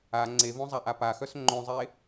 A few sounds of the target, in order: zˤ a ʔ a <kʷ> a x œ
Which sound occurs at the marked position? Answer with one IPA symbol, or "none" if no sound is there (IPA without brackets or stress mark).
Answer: p